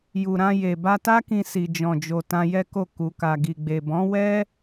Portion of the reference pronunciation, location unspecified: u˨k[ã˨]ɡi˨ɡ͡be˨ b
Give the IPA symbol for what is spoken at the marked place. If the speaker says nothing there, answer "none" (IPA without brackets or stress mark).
a˨